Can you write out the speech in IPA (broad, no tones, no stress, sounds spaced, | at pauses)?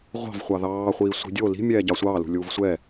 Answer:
ʁʷ ɑ̤ v χʷ ɑ ð ɑː χʷ iː sʷ i̤ dʲ o l i̤ mʲ ɛː ɟ ɑ sʷ ɑː l ṳ lʲ uː v sʷ ɛ